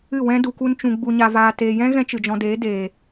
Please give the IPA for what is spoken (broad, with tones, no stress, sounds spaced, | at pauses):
ɨ˦˨ w ɛ̃˦ d u˧ k u˦ n t͡ʃ ũ˧ ɡ͡b u˨ ɲ a˨ v aː˨ t eː˨ j ɛ̃˦ ɣ ɛ̃˦ t͡ʃ ɨ˨ d͡ʒ ɔ̃˧ d eː˨˦ d eː˨